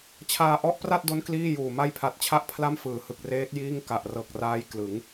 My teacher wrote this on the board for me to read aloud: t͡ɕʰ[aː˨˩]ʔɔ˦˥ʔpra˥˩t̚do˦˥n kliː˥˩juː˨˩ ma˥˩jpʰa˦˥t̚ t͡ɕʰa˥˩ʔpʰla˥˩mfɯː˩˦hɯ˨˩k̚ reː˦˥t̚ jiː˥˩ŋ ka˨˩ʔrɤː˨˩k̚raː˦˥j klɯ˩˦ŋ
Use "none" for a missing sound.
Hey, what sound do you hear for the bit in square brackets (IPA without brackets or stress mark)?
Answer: aː˧